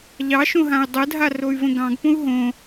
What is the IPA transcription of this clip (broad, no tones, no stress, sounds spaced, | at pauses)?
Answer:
ʎ ɑ ʃ õ ɦ ã y̯ dˤ ə dʱ a r o y̯ v ə̃ ɡ ɑ̃ ɡ p õ u̯ ɦ õ